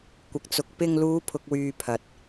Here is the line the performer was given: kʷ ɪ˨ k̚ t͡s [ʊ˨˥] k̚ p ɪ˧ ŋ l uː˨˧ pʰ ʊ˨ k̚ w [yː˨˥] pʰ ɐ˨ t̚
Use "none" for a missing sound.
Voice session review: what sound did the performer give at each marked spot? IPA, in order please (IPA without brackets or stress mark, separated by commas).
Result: ʊ˨, yː˨